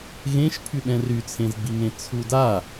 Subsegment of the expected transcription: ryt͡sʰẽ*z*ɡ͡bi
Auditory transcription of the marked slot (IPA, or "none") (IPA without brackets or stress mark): z